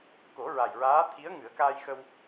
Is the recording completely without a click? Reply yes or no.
yes